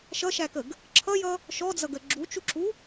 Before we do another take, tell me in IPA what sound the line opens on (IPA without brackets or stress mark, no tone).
ʃ